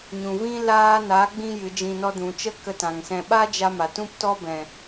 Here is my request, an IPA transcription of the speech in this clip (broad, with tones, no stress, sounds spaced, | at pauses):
ɲ ũ˨ v ĩ˦ l aː˦ n a˨˦ ɡ͡b ĩ˧ j ɨ˨˦ d͡ʒ ĩ˧ n ɔ˧ d ũ˨ t͡ʃ ə˦ k ə˧ t ã˨ ŋ s ɛ̃˧ ɓ a˦ d͡ʒ a˧ m a˨ t ũ˦ p t ɔ˦ b ɛ̃˨